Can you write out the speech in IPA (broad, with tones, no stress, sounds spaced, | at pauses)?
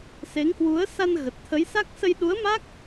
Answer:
s e˨˦ ŋ h w u˨˦ ə̯ s a˧ n ɣ ə˨˩ t̚ t̪ʰ ə˨˦ j s a˦˥ k̚ s ə˧ j ɗ u˨˦ ə̯ m a˦˥ k̚